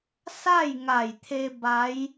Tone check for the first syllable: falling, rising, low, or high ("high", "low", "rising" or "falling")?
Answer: falling